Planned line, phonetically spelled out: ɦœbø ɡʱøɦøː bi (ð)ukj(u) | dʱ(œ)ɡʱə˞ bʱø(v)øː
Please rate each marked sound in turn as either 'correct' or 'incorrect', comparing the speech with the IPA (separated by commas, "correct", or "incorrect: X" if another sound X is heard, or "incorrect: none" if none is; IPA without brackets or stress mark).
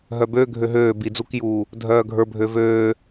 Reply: incorrect: d͡z, incorrect: uː, incorrect: œː, correct